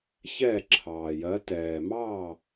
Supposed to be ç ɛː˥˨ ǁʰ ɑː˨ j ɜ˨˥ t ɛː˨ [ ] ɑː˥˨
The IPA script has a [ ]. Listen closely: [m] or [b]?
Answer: m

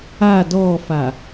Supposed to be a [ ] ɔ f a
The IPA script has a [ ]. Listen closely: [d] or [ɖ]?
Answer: d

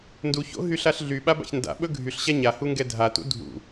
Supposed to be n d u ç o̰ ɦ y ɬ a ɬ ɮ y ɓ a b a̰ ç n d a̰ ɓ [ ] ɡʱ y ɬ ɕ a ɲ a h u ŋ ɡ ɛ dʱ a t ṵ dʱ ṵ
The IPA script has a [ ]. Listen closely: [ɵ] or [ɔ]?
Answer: ɵ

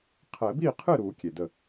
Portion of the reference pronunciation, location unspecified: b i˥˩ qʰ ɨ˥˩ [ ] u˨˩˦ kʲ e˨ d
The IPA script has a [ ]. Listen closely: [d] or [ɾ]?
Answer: ɾ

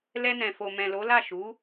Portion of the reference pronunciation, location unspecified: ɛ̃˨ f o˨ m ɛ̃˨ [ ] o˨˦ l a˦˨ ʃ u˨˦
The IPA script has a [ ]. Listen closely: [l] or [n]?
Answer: l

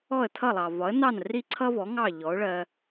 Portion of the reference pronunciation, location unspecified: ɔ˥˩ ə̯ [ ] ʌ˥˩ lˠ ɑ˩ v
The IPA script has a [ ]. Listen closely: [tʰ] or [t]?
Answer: tʰ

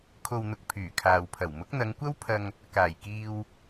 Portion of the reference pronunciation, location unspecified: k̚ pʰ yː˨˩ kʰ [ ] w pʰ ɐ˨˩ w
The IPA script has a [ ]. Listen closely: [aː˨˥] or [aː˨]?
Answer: aː˨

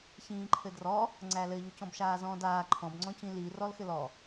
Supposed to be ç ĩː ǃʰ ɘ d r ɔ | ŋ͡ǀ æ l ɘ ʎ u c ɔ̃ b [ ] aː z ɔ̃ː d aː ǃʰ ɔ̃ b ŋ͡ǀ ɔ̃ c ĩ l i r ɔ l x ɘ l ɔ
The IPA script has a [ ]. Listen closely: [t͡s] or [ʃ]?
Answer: ʃ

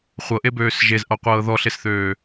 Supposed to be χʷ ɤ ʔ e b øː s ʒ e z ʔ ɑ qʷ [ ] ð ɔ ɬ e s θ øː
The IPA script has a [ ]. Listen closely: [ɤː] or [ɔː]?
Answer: ɤː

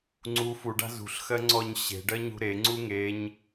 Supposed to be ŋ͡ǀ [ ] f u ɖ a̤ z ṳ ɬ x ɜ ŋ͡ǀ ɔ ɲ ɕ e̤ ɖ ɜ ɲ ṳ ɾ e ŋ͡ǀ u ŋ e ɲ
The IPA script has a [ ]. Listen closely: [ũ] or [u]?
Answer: u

